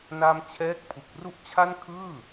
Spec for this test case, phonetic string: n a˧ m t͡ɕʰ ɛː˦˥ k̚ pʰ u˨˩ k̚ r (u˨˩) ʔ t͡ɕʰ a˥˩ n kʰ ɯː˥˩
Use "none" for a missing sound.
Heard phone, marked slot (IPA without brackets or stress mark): u˥˩